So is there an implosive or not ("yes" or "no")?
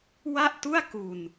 no